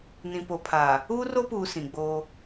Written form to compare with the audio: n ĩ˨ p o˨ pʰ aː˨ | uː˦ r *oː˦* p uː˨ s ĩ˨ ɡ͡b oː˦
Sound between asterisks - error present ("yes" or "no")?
yes